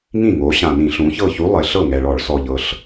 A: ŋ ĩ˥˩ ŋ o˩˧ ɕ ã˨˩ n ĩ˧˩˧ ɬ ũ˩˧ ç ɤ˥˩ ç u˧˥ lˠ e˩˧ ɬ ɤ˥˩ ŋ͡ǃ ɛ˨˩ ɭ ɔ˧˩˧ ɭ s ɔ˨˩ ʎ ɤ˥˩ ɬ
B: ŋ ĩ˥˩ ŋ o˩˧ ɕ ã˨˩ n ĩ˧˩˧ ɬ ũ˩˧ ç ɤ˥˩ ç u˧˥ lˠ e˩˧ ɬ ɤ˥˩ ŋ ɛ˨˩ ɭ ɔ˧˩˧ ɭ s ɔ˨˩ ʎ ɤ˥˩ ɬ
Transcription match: B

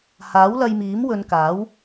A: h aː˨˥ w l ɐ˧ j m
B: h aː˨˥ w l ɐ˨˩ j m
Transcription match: A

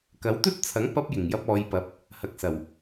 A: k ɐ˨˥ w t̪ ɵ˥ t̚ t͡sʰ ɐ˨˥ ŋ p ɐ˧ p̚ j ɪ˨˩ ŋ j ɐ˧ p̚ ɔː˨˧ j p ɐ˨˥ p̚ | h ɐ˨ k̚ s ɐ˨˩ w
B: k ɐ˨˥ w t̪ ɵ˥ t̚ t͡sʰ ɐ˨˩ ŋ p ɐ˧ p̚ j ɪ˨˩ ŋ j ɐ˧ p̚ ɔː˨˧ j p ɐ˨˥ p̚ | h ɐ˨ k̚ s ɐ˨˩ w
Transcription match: A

